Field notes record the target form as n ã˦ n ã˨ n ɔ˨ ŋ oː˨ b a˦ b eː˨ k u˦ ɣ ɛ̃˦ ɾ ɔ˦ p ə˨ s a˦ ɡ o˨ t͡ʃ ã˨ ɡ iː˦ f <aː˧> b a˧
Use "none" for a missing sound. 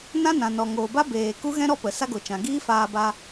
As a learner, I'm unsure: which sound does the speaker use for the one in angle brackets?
aː˧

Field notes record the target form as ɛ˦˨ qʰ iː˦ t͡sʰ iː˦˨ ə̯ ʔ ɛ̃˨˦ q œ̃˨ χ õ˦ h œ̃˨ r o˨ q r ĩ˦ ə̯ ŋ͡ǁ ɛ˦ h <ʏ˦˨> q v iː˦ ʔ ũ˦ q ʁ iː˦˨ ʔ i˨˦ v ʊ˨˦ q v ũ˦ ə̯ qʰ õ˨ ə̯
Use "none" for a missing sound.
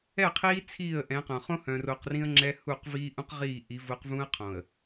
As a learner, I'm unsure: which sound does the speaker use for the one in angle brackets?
u˦˨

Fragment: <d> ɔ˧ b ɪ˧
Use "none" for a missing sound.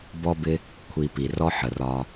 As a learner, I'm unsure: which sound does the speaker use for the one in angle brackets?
b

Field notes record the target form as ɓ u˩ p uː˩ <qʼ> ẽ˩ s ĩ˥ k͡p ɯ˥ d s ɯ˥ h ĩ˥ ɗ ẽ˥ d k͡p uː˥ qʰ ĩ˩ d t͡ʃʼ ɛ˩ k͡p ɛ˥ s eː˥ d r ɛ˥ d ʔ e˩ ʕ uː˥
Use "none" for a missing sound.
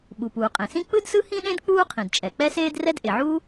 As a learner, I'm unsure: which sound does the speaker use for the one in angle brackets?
qʼ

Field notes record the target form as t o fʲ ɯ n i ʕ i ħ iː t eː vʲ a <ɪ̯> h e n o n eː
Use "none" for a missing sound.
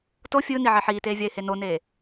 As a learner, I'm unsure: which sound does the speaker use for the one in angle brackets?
ɪ̯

